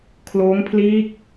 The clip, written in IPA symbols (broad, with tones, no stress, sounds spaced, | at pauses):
kʰ l oː˦˥ ŋ pʰ l iː˦˥ k̚